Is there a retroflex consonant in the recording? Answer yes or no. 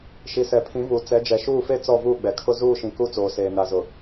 no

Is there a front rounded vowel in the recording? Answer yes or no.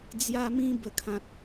no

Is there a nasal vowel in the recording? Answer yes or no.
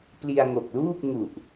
no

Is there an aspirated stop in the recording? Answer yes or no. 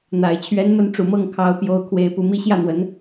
yes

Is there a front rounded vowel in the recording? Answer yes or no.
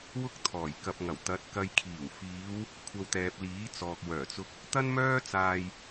yes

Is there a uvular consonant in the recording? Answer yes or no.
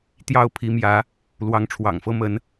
no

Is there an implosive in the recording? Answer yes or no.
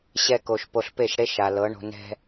no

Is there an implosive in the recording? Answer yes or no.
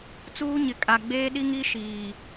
yes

